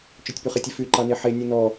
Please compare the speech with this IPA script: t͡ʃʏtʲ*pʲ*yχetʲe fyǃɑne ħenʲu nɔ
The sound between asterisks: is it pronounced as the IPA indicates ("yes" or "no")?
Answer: no